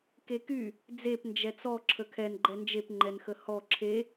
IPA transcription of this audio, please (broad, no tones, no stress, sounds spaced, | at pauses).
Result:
k e k y | d͡z e p n d͡ʒ ɛ t͡s ɔ ǁʰ ə kʰ ɛ n ɡ͡ǃ ɛ n d͡ʒ e p ŋ͡ǃ ɛ n x ə h ɔ ǁʰ e